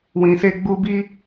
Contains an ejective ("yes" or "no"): no